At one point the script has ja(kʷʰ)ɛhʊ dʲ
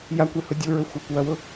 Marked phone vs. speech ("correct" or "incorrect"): incorrect